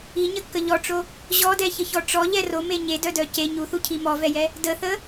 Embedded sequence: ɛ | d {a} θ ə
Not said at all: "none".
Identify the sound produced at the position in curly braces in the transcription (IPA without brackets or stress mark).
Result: ə